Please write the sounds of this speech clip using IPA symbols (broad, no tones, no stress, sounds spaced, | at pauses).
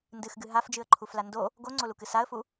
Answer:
n d ɨ x ɡ ɨ ɦ a f d͡ʒ ɨ ə̯ ǃʰ u f l a n d o | ɡ o ŋ͡ǀ o l u k ɨ s a ə̯ f u